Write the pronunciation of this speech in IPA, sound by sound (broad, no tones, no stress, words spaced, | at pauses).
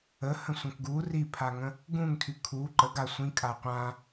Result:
əhə̃ sʷə̃kɡu ripʰaŋə̃ | ɡũŋtʰy kʰu ǃə ɡa sʷĩkʼa qʷã